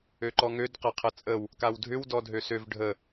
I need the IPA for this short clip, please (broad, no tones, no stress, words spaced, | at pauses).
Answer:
øǃɔŋød qɐqʰɐt͡sʼəw | kawdʱʏw dɔdʱøsøv ɖʱə